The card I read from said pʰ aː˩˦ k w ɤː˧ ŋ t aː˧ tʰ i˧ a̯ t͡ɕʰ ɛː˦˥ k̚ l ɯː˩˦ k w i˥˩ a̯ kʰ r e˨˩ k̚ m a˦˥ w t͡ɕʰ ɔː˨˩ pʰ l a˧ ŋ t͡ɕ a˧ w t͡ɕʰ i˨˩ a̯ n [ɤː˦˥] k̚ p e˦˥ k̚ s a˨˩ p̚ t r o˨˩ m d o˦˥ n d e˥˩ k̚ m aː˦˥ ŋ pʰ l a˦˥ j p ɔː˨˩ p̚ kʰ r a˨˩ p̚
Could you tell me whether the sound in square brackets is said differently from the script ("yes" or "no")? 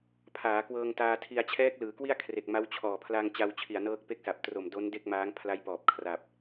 no